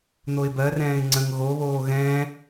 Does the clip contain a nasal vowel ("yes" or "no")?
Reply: yes